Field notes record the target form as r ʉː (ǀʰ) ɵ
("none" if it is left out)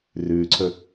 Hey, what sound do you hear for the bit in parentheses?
ǀʰ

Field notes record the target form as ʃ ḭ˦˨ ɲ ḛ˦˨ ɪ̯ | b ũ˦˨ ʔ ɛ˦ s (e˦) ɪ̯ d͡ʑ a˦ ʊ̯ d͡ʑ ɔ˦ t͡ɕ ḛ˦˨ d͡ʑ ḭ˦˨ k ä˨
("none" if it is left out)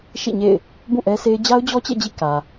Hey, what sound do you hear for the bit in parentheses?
e˦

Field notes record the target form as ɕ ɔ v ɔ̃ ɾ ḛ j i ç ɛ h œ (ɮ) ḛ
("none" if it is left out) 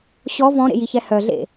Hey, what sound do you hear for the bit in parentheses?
ɮ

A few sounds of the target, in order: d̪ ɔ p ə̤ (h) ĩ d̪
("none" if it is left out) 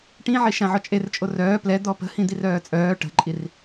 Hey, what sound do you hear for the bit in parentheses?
h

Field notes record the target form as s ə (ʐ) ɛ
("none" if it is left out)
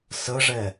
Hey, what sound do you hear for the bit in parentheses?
ʐ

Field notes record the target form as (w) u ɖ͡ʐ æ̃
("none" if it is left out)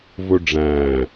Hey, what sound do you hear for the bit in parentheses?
v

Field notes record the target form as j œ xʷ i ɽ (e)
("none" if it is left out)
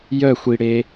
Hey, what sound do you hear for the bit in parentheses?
e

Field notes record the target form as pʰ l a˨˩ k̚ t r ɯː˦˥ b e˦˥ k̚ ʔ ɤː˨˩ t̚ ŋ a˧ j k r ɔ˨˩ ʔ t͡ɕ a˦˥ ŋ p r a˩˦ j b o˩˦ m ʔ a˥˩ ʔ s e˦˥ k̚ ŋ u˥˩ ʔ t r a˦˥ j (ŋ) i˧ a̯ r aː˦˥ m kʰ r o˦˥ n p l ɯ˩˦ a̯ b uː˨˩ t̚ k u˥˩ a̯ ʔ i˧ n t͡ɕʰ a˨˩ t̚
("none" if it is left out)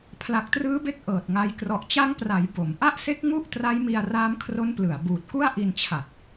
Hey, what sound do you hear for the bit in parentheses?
m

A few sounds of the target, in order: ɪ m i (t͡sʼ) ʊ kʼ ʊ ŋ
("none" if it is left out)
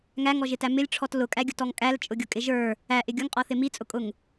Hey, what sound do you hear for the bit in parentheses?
t͡sʼ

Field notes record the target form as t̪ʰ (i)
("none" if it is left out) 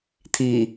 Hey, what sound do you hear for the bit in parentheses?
i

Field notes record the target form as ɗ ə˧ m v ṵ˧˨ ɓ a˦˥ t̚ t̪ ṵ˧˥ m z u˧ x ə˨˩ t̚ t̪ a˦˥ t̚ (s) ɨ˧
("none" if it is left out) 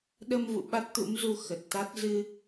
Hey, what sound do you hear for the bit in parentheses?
z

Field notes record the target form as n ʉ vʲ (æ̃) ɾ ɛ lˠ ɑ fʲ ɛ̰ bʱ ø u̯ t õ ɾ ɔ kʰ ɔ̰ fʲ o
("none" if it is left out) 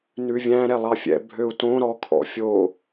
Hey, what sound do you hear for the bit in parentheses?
æ̃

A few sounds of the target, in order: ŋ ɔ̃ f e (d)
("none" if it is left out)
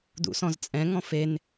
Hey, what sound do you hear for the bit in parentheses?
n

